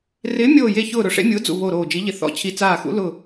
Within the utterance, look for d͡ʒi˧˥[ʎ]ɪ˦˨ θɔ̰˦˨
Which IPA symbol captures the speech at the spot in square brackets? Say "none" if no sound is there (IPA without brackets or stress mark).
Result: ʎ